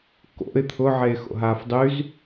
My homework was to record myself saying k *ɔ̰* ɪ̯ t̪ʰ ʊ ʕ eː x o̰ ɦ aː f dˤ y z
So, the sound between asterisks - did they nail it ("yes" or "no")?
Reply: no